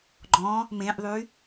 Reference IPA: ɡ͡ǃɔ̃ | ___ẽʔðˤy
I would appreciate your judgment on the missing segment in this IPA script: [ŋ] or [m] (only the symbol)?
m